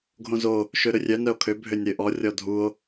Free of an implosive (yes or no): yes